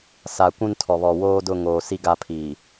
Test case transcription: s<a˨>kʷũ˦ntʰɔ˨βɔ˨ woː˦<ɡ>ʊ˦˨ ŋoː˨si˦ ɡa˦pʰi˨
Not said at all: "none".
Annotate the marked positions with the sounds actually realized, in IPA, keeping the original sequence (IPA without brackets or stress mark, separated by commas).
a˨, d